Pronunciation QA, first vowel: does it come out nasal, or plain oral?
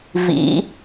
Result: oral